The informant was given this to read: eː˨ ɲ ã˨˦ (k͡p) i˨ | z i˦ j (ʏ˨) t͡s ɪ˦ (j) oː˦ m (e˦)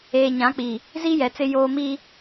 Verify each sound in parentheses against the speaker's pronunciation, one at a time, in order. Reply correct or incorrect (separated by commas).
correct, incorrect, correct, incorrect